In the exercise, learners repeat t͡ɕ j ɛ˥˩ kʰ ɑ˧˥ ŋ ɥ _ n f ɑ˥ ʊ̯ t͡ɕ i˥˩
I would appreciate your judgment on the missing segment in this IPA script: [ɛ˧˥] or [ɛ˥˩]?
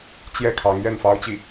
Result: ɛ˥˩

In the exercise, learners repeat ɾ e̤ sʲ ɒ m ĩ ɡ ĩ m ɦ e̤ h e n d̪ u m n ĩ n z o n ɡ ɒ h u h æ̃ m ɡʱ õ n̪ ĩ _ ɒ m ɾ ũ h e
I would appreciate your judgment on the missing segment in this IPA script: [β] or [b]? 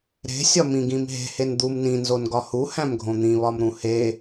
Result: β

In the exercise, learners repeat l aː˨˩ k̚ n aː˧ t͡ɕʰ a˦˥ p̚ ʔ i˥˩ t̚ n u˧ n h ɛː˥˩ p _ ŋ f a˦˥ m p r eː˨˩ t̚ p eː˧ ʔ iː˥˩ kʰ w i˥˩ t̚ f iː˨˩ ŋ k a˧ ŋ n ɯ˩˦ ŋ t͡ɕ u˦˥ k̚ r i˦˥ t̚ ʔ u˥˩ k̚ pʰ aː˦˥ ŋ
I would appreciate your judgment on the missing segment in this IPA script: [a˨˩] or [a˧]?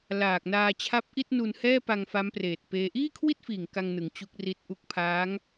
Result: a˧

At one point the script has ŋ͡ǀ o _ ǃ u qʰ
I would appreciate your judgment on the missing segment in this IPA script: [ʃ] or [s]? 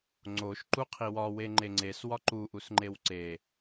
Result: ʃ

